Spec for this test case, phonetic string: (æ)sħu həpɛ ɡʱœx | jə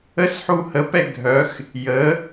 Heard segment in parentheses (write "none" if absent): ə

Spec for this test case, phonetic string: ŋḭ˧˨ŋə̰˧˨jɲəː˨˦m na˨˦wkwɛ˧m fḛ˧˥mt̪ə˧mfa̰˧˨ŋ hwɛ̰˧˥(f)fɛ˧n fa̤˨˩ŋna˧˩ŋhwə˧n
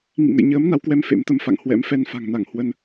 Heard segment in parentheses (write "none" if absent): m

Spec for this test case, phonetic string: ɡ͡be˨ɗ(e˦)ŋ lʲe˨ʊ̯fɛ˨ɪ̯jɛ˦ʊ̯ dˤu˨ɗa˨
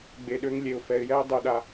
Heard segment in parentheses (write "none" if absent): ø˦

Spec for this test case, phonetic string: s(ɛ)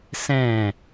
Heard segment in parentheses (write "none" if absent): ɛ̃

